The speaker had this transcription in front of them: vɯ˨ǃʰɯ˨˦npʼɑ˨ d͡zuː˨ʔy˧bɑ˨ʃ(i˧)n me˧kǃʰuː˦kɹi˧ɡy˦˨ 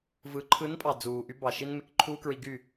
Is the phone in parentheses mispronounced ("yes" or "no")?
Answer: no